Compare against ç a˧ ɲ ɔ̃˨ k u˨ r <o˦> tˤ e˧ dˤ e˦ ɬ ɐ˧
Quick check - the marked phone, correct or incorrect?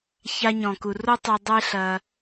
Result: correct